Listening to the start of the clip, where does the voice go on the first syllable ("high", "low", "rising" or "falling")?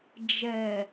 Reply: low